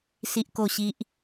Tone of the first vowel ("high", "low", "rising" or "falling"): high